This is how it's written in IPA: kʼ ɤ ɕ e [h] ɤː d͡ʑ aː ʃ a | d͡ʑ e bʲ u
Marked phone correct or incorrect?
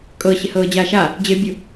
correct